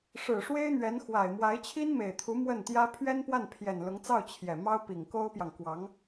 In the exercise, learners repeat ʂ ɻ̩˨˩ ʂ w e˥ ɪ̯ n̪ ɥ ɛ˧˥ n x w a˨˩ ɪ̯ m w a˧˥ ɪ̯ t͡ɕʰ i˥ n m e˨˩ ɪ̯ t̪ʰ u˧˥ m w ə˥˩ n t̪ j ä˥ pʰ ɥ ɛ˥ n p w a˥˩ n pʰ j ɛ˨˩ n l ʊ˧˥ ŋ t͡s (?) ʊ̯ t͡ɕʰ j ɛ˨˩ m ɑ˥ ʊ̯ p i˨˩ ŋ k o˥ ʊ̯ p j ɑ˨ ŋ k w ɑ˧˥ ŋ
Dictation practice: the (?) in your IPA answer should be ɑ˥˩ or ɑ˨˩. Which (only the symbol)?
ɑ˥˩